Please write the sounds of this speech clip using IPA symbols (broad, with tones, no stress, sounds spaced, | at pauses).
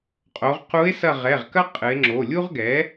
qʼ o˩˧ ʁ q u˧˥ e̯ s ɐ˦˨ ʁ ɛ˩˧˩ ʁ k ɐ˥ qʼ ɨ˩˧ e̯ ŋ͡ǁ o˩˧˩ lʲ u˥ ʁ ɡ ɛ˩˥